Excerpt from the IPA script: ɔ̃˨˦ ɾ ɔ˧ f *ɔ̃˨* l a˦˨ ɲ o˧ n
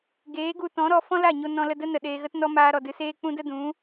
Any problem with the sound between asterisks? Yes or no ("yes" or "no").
yes